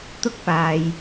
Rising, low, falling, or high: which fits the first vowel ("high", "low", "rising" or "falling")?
high